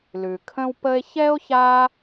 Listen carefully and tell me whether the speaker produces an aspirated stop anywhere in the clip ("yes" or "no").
yes